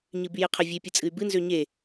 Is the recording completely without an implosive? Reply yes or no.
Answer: yes